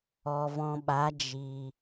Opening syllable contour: low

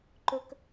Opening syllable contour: high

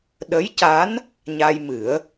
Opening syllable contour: rising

